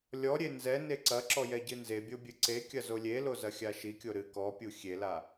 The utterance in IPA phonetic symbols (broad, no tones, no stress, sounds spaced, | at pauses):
lʲ ɔ ɾʲ e n z ɛ n e ǀ ɐ ǁ ɔ j ɛ ɟ ɨ n z e bʲ o bʲ ɨ ǀ e kʲ ɐ z o lʲ e l o z ɐ xʲ a ʃ i kʲ o ɾ ɨ k ɔ pʲ u xʲ e l a